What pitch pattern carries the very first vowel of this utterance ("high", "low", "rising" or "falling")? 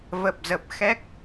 low